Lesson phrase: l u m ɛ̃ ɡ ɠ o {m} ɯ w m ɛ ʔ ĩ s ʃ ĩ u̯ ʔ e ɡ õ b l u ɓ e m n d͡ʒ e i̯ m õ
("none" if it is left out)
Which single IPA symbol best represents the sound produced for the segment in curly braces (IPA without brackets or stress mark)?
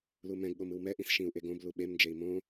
m